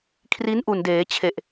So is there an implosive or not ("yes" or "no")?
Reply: no